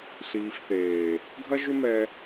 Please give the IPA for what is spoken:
ɬ iː˨ f θ eː˨ | ɡʱ ɐ˦ ʒ ʏ˦ m ɛ˧

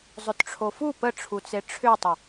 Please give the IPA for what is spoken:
zˤ ʏ t ʈ͡ʂʰ o f u p ə ʈ͡ʂʰ u t͡s e ʈ͡ʂʰ ʏ tˤ ʌ

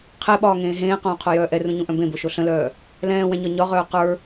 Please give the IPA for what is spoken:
qʰ e ɓ ɒː ŋ ẽː ɦ ẽː q õː qʰ o j œː ʔ ɛ r ũ ɲ ũ ʔ œ̃ b ẽ b o ʃ o ɬ ə̃ l œː | l ɛ̃ː w ɛ̃ ɲ ɒ ɲ ɒ ʁ œː q ə˞

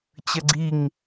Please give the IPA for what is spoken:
t͡ɕ ɐ ɡ͡ǀ i ŋ

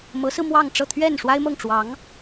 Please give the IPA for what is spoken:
m ɤ˧˥ s ɹ̩˧ m w ɑ˥˧ ŋ ʈ͡ʂ ɤ˥˧ t̪ʰ ɥ ɛ˥˩ n ʂ w a˥ ɪ̯ m ɤ˥˩ ŋ ʈ͡ʂ w ɑ˧˥ ŋ

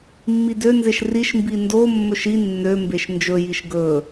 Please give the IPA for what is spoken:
mː i d ø n z e ʃ r i ʃ m b i n d o mː ɵ ʃ i nː ø m b e ʃ n d͡ʒ ɵ j i ʃ ɡ ɵ

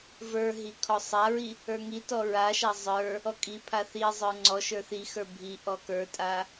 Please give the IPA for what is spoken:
v ə˞ ɦ i kʰ ɔ sˤ a ɹ i | ə˞ ŋ i t ɔ ɹ a ʃ a zˤ ə˞ | ɔ kʼ i pʰ a θ i zˤ ə˞ ŋ͡ǀ ɔ ʃ ə˞ θ i x ə˞ bʱ i ʔ ɔ k ə˞ tʼ a

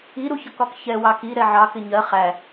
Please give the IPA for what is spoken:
i ɾ u ç ʌ k ɒ k ç ɛ w ɑ k i ɾ ɛ ʕ ɑ k ɪ ɲ ɜ χ æ

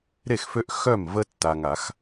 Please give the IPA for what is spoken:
ɾ e˥˩ x f ø˦ ʔ x œ˥˩ m v ə˦ tː a˨ ŋ a˨˩˦ x

